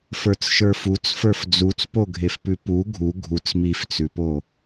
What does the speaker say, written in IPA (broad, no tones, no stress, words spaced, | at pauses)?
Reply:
fə˞t͡sʃə˞fut͡s fə˞fd͡zut͡spoɡʱef pʉpu ɡʱu ɡʱut͡s mift͡sʉpo